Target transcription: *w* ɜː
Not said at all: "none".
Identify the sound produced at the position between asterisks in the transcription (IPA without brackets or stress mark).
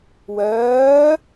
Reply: w